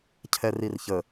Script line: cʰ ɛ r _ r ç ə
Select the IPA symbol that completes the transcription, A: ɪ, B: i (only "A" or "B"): B